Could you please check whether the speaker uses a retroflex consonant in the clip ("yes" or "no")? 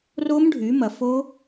yes